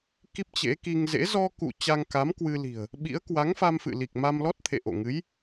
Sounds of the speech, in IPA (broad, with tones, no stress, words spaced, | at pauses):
ki˦˥p̚t͡ɕḛ˧˥ki˧ŋ zḛ˧˥ zɔ˧kṵ˧˨ t͡ɕa˧ŋka˨˦mkwɨ˧li̤˨˩ə̯ | ɓḭ˧˥ə̯kwa˨˦ŋfa˧mfɨ̰˧˨ li˨˩k̚ma˧mlɔ˦˥t̚t̪ʰḛ˧˨ ʔo̰˧˨ ŋɨ˨˦j